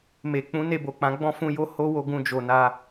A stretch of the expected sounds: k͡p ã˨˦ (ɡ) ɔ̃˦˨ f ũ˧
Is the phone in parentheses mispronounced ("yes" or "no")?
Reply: yes